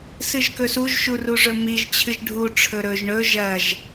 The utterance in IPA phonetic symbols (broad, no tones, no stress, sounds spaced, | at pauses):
s ɨ ʒ k ɵ s u ʒ ʃ u r u ʐ ɵ m i ʒ t͡ɕʰ ɨ ʒ ɖʱ u ʈ͡ʂʰ ɵ ɾ ɵ ʒ ɳ ɵ ʒ ɐ ʒ